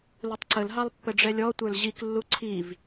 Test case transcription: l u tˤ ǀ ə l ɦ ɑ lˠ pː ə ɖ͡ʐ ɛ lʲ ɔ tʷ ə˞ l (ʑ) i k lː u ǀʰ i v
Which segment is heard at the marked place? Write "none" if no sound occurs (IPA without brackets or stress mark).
ʑ